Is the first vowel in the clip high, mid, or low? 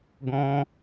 mid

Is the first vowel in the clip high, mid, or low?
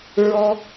mid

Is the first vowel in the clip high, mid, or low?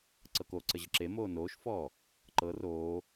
mid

